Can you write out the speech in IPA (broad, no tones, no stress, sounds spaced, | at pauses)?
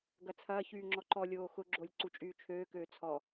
ɡ ɐ t͡sʰ ɐː ç yː ŋ͡ǁ ɔ ǃ ɔ lʲ oː x ʊ ɡ͡ǁ o lʲ ǀ u t͡ʃʼ yː t͡ʃʰ øː k øː t͡sʰ ɔ